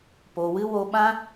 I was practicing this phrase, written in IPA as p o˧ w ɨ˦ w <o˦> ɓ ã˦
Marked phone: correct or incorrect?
correct